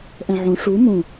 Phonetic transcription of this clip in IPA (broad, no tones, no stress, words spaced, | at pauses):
ʔɛ̃ʕũ ʂu mũ